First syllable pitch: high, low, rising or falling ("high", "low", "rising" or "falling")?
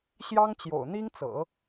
high